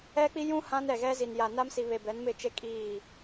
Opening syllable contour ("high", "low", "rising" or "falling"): high